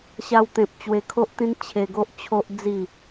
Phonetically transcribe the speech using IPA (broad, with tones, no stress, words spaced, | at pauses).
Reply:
ɕa˧wt̪ẽ˨p̚t͡ɕwe˧kʰo˦ʔ t̪ĩ˦nt͡ɕʰe˧ɡo˦ʔ t͡ɕʰo˦ʔd͡zi˥˧